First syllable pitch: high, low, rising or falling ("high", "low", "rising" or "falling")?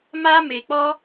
high